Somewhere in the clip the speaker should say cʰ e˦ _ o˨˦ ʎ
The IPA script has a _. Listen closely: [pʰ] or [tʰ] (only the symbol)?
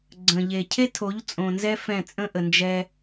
tʰ